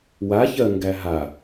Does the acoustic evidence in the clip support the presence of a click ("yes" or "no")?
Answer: no